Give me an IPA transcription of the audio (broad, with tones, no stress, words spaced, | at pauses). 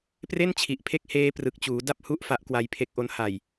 pre˥˩nt͡ɕʰi˨˩ʔpʰe˦˥k̚ heː˦˥ prɯ˨˩k̚t͡ɕuː˩˦ da˥˩p̚ hu˦˥ʔ fa˦˥ʔkwa˧jpʰe˦˥k̚ʔo˦˥n ha˨˩j